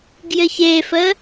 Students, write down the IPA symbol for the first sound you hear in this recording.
ɡ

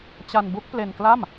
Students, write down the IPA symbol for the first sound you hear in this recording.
t͡ɕ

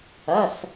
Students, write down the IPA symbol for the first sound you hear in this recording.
ɐ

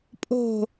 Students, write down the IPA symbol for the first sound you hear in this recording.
pʼ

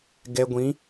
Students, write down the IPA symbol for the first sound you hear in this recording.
ɡ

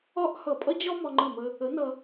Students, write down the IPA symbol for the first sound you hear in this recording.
ɒ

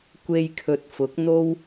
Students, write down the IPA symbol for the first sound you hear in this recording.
kʷ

